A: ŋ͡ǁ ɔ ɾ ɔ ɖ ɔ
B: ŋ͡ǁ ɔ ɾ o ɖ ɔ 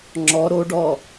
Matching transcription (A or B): B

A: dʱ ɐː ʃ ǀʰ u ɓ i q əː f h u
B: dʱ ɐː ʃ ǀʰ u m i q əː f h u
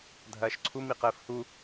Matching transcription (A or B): B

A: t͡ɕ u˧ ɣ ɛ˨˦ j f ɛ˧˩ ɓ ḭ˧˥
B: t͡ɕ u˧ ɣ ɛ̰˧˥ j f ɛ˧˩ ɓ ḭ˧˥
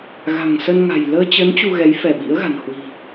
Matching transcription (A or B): A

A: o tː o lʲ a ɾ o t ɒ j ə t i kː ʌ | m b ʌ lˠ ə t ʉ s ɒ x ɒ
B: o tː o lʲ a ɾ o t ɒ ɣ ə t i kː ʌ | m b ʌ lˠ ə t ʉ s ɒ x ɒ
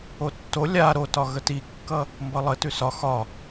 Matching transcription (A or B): B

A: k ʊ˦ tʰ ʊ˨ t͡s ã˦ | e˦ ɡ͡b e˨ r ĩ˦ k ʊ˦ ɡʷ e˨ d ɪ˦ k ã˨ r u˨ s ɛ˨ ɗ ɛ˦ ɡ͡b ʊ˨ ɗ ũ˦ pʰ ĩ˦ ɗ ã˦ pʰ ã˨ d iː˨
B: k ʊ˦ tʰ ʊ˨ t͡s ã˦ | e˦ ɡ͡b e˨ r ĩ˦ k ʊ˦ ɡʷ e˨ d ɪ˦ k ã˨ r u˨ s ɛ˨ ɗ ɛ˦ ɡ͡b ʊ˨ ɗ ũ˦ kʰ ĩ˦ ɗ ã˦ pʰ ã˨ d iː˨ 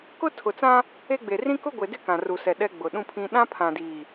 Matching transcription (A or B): A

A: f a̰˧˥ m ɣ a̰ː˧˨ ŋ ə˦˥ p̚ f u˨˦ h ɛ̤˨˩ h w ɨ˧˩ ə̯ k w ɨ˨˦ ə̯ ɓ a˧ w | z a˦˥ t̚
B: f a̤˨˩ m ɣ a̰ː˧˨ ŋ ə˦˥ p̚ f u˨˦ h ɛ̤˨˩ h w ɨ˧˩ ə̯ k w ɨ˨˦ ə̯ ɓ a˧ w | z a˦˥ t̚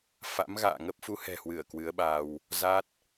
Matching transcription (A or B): A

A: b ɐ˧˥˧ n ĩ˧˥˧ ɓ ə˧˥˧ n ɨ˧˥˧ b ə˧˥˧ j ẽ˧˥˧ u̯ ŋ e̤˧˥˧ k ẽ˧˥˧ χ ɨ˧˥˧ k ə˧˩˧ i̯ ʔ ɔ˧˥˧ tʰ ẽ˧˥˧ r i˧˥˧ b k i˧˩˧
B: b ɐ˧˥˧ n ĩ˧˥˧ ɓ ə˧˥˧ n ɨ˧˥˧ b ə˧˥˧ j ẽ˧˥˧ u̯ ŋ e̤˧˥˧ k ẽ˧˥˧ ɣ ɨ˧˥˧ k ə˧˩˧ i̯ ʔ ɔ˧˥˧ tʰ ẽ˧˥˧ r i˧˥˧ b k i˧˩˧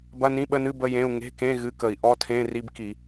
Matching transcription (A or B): B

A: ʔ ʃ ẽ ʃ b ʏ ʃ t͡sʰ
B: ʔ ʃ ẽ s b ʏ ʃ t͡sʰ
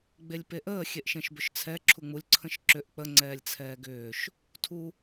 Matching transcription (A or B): A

